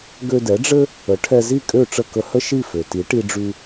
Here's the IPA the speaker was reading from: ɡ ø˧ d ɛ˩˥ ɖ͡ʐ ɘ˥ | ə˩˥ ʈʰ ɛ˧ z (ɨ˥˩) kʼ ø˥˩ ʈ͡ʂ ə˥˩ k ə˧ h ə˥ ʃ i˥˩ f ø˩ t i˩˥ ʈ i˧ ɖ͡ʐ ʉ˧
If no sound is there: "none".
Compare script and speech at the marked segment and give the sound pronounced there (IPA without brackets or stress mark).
i˥˩